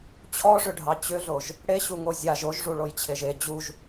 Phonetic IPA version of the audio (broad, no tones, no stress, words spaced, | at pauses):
t͡ɕʰɔʐʏɖʱɑ t͡ɕʏɮoʒ | ɽeɕuŋo zʲaʒ oʒʐuɭojt͡ɕʰeʒ e d͡ʑuʒ